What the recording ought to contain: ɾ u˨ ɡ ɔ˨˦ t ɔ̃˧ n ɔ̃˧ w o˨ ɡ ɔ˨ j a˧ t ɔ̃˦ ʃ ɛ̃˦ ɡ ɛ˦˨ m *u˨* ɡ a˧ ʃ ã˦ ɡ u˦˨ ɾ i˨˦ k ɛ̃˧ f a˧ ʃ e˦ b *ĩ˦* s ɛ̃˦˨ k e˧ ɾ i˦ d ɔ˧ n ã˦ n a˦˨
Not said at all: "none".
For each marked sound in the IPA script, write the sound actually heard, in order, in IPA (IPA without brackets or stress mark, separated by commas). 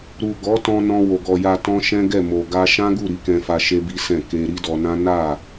o˨, i˦